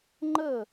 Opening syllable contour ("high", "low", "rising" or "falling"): falling